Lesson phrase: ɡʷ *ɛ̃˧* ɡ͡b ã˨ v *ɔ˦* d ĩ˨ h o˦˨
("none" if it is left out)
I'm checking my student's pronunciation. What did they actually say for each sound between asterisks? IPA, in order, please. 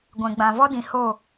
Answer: ɛ̃˨, ɔ˦

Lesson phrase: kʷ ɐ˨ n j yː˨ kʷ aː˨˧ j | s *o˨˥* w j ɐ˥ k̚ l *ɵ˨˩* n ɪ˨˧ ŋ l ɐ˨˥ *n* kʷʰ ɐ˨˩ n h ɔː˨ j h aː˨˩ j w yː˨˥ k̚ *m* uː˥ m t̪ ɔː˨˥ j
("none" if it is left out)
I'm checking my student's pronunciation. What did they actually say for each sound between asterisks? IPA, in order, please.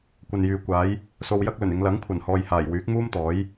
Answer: o˧, ɵ˨˩, ŋ, m

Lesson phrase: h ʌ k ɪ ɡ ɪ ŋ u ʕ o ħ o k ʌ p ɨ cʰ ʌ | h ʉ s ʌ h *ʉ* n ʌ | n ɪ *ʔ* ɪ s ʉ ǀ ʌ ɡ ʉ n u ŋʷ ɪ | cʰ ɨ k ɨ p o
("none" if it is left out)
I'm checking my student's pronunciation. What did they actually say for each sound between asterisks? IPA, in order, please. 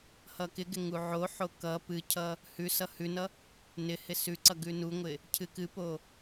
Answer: ʉ, h

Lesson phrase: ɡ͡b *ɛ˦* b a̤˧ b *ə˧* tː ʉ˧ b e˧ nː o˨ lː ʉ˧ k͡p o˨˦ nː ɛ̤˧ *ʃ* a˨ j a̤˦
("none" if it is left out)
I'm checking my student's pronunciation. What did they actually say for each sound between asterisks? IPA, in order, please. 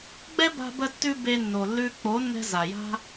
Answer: ɛ˦, ə˧, z

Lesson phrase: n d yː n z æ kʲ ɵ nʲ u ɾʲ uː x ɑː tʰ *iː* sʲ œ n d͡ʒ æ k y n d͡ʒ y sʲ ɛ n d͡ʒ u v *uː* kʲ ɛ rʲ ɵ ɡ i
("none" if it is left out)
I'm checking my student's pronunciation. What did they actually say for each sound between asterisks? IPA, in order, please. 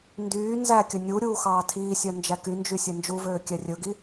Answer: iː, øː

